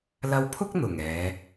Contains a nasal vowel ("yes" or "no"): no